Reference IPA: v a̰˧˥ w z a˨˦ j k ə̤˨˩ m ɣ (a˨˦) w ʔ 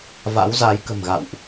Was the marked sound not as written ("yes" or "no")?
yes